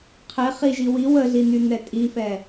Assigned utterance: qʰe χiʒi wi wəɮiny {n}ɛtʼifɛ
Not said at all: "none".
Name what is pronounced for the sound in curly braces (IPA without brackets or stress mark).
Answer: n